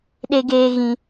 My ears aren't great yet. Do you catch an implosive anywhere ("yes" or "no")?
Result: yes